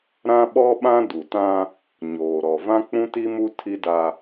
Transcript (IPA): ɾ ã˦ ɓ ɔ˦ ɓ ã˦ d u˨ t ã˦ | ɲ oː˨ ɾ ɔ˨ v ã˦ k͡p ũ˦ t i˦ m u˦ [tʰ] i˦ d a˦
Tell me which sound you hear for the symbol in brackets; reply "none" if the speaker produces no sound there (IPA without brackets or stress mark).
tʰ